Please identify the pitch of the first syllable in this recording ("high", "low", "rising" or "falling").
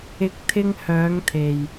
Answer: low